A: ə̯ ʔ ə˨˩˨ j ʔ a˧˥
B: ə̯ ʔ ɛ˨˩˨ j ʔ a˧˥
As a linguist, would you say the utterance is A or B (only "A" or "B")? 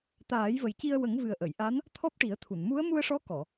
A